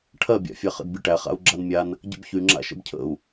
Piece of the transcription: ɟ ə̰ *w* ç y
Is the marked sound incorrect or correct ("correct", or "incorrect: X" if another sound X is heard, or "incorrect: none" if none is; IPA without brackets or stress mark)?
incorrect: b